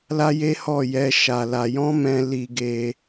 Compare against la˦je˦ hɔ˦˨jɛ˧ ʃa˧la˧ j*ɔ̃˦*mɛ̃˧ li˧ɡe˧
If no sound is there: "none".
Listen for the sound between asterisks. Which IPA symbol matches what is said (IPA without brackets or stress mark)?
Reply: ɔ̃˦